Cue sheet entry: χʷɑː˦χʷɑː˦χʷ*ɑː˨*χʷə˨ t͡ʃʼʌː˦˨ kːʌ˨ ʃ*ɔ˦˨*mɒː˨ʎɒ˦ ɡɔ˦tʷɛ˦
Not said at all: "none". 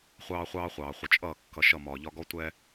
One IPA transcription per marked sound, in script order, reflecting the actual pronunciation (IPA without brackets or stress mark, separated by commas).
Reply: ɑː˨, ʌ˦˨